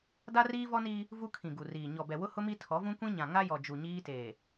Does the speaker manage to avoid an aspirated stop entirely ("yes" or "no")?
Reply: no